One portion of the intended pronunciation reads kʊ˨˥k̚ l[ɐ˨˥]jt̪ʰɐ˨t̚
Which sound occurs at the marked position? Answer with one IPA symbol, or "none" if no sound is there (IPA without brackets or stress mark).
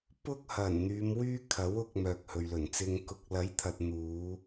ɐ˨˥